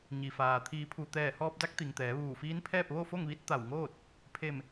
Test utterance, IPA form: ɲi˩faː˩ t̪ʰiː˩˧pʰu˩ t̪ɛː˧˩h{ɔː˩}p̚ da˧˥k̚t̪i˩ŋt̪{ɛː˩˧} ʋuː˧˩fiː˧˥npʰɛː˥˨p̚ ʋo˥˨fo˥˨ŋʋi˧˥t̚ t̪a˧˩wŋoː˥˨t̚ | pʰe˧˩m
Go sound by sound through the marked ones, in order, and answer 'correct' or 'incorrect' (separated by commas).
incorrect, correct